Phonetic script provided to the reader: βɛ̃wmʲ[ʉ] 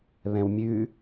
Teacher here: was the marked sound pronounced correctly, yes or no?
yes